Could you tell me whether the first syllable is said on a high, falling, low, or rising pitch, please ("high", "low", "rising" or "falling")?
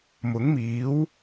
rising